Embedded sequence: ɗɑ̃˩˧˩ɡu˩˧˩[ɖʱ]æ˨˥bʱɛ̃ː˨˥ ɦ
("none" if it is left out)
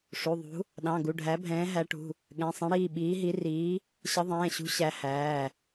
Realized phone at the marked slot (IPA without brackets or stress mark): ɖʱ